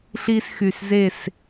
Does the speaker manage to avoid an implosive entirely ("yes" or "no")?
yes